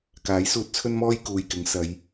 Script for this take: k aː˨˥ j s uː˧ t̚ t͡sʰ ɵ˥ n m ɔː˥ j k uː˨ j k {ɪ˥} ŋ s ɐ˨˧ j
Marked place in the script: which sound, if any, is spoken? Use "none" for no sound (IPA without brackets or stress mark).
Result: ɪ˨˥